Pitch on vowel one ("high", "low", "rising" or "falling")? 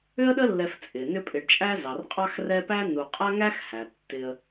high